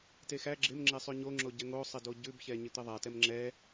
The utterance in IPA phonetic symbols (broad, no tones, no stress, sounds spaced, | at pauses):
t e x æ ɡ͡ǁ ɪ m ŋ͡ǁ e sˤ ʉ ɲ o ŋ͡ǁ o ɟ ɛ ŋ o sˤ ɪ d o ɟ ʉ b ç ɛ ɲ ɪ t̪ ɪ ðˤ æ t ɛ m ŋ͡ǁ ɛ